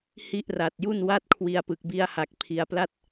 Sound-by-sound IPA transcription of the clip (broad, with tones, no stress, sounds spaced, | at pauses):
h i˥˩ ʔ r a˨˩ t̚ j u˥˩ n w a˥˩ t̚ kʰ w i˧ a̯ p ɯ˨˩ k̚ b i˧ a̯ h a˨˩ k̚ pʰ i˧ a̯ p l a˥˩ t̚